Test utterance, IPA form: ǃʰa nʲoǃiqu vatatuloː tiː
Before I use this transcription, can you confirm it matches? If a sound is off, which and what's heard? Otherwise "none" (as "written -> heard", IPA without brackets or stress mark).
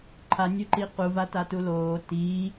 none